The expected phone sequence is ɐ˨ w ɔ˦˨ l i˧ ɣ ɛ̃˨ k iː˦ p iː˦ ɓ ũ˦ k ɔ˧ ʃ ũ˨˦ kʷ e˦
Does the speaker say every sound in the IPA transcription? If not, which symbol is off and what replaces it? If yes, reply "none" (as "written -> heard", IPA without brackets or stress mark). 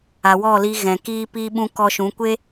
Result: ɐ˨ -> a˨